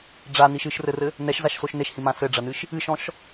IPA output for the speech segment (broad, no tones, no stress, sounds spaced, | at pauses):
ɖ͡ʐ a n i ʃ ɨ ʃ r ɘ r ɘ | n ɛ ʃ z a ʃ s o ʃ n e ʃ h ĩ m ã s ɘ ɖ͡ʐ ɐ n ɨ ʃ | ɨ ʃ ɔ̃ ʃ